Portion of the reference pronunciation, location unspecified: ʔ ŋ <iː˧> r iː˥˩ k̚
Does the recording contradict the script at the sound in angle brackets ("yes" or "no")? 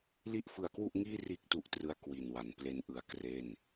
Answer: yes